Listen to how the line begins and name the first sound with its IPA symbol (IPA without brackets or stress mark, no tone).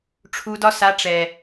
ʈ͡ʂʰ